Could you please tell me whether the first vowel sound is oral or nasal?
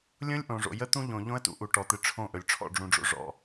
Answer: nasal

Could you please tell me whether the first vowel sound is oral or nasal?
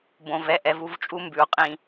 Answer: nasal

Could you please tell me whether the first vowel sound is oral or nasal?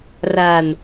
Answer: oral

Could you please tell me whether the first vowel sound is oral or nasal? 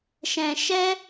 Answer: nasal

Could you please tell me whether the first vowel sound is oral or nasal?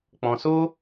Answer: nasal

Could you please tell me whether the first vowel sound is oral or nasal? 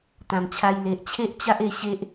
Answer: nasal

